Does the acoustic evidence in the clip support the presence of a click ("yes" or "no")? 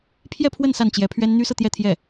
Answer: no